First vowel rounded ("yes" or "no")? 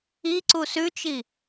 no